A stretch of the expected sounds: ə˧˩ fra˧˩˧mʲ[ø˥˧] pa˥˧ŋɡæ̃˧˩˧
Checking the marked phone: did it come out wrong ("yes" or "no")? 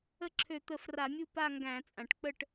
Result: yes